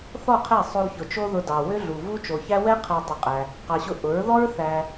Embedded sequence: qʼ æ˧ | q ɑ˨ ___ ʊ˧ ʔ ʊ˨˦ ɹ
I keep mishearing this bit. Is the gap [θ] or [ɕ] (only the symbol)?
ɕ